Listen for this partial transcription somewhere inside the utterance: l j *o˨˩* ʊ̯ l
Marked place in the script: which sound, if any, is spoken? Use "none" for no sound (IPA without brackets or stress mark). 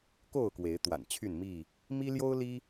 o˦